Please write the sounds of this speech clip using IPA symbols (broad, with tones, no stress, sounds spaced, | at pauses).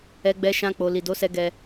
ɛ˧ ɡ͡b ɛ˧ ʃ ã˧ k͡p o˨ l i˨ d o˨˦ s ɛ˧ ɡ ɛ˧